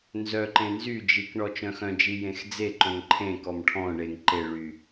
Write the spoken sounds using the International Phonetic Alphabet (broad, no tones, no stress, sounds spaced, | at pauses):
n z œ ǃ ẽ n z y d͡ʒ i k ɳ ɔ t͡ʃ œ̃ x œ̃ d͡ʒ i j ẽ x d͡z e ǃ œ̃ ŋ ǃʰ ẽ k ɔ m ʈʰ ɔ̃ ɳ e ŋ ǃ e ɭ y